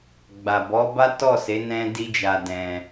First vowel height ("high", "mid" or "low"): low